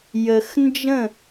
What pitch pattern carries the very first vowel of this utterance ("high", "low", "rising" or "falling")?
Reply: low